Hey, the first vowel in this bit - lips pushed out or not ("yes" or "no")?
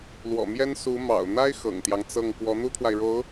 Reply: yes